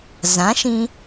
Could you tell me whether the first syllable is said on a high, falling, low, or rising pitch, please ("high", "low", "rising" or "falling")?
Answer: rising